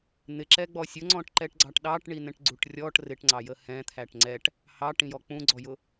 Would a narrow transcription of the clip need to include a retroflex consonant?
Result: yes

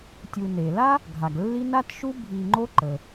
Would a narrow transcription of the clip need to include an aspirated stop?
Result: no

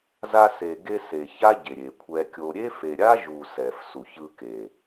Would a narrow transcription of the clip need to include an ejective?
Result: no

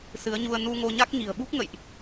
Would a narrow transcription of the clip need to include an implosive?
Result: yes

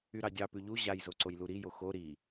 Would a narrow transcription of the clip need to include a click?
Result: yes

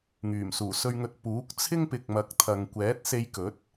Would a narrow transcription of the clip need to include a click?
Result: no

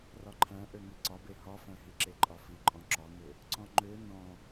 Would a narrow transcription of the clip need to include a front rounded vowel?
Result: yes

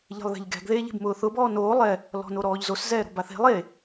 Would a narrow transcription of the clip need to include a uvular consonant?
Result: no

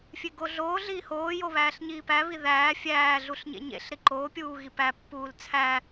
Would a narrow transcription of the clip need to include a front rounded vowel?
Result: no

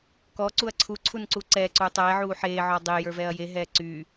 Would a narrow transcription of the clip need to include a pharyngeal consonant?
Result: yes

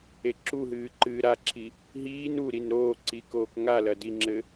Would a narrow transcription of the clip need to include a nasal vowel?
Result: no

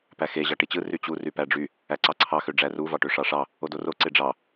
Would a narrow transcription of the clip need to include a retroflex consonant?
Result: yes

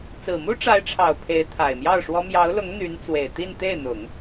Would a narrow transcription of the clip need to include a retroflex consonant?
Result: yes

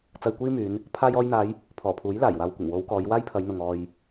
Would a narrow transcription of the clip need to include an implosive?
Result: no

